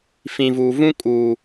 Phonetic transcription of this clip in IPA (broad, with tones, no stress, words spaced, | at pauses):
fĩ˨vuː˨vũ˦ kʼuː˨